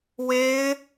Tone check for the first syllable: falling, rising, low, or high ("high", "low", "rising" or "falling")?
high